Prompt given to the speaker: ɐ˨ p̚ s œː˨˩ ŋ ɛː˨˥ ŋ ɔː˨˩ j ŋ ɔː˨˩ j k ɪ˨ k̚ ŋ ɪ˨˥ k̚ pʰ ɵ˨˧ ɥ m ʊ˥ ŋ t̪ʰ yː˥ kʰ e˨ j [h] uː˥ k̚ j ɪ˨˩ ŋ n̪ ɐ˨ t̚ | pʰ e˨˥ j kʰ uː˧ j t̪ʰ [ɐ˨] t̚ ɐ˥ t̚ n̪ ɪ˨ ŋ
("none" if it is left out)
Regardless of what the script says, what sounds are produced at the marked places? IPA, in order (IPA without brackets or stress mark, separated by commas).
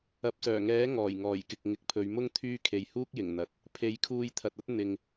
h, ɐ˨